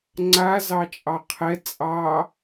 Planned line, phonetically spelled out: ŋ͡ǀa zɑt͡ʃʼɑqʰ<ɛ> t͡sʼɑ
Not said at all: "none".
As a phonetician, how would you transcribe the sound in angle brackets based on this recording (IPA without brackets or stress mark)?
ɛ